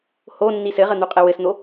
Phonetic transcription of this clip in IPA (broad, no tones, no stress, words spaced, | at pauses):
ho nːisɘʁə n̪uqʼewɘsn̪o